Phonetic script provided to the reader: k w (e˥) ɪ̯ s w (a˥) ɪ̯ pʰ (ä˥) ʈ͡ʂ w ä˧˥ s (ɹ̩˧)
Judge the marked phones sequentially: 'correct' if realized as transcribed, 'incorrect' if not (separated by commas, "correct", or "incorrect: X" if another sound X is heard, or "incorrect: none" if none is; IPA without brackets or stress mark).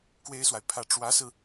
correct, incorrect: a˨, incorrect: ä˥˩, correct